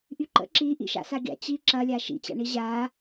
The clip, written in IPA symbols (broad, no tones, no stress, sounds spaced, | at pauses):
ʔ y ǃ ə̰ ǁ i ʔ ḭ ʃ a̰ s a ɡʲ a̰ t͡ɕ i ǁ ɐ lʲ a ʃ ḭ t͡ɕ a̰ ɳ i ʑ a